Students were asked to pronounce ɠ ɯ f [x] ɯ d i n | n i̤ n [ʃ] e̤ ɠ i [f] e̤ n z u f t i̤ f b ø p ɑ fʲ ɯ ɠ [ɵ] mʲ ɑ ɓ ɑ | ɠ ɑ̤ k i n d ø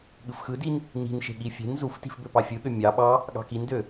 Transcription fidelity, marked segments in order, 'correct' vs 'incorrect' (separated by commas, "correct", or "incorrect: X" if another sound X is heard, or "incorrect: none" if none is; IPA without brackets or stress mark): correct, correct, incorrect: fʲ, incorrect: ø